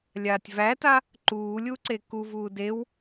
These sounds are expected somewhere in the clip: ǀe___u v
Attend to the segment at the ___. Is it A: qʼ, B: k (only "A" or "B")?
B